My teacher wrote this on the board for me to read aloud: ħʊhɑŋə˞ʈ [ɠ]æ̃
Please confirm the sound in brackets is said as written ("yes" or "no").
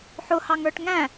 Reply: no